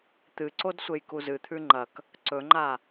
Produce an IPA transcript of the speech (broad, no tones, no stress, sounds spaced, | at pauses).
t̪ ɨ ǀ o d sʷ e j k u z ɨ t̪ʰ ʉ ŋ͡ǃ ɐ k | ǀ ɵ ŋ͡ǃ a